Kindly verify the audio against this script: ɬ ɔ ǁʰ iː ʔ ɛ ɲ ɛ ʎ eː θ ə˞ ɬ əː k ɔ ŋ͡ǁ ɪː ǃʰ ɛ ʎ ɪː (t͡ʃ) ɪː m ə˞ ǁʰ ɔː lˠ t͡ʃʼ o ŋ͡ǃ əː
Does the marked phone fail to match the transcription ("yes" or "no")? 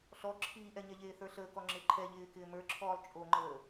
yes